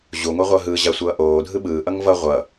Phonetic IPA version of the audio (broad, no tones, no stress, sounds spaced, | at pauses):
ʑ u ŋʷ ɛ ʁʷ ʌː ɦ ɯː ʑ a sʷ ʌː ʔ oː dʱ ɯ ɓ ɯː ʔ ʌ ŋ v ʌ ʁʷ ʌ